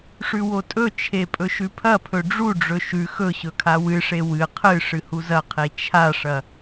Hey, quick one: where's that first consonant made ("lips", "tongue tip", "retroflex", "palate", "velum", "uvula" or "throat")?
retroflex